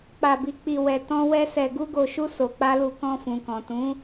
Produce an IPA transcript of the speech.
k͡p a˧ b i˧ k͡p i˧ w ɛ˧ t ɔ̃˦ w ɛ˦ s ɛ˧ ɡ u˦ ɡ o˧ ʃ u˦ s o˧ k͡p a˦ l u˦˨ k ɔ̃˧ f ũ˨ k ɔ̃˨ t ũ˨˦

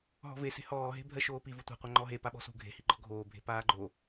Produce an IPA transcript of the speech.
ɦ ɔ̤ v e s e̤ h ɔː ɦ e̤ bʱ ɜ ʃ oː p i v u tʷ a̤ qʷ a ŋ͡ǃ ɔ ɦ e p a ɓ ɔ̤ s ṳ ɡʱ e̤ h i ɡ͡ǃ ɔ ɡʱ oː bʱ e̤ p aː ɡ͡ǃ o

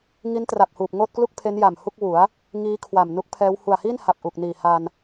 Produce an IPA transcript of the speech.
ŋ i˦˥ n t r a˨˩ p̚ h uː˨˩ p̚ ŋ oː˥˩ t̚ k l u˥˩ k̚ pʰ e˦˥ n j a˨˩ m h u˥˩ k̚ w u˩˦ a̯ | ŋ iː˦˥ kʰ w a˨˩ m n u˦˥ k̚ pʰ ɛː˦˥ w h u˨˩ a̯ h i˥˩ n h a˨˩ p̚ ʔ u˨˩ k̚ n iː˨˩ h a˧ n

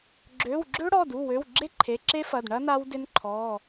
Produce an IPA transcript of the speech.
ɡ͡ǁ ø˩˧˩ w ɡ͡ǁ ø˦˥ ɽ ɔ˩˧˩ d u˩˧˩ w ø˩˧˩ w ɡ͡ǁ e˦˥ ǃʰ e˩˧˩ ǁ e˦˥ f ɐ˩˧˩ d ɳ ɐ˦˥ n a˦˥ w d ɪ˦˥ n ǃʰ ɔ˩˧˩

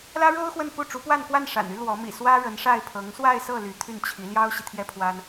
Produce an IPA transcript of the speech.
l ä˥ ɻ o˥ ʊ̯ x w ə˥˧ n p u˥˩ ʈ͡ʂ u˧˥ p w a˥˧ n k w a˥˩ n ʂ a̰˨˩ n y˥ l w ɔ˧˥ m ḭ˨˩ s w ä˥ ɻ ə˧˥ n ʂ a˥˩ ɪ̯ pʰ ɤ˧˥ ŋ s w a˥˧ ɪ̯ s ɤ˥˩ l y˧˥ t̪ʰ y˥˩ n t͡ɕʰ i˧˥ l j ɑ˥ ʊ̯ ɕ i˨ t̪ʰ j ɛ˥ pʰ w a˥ n

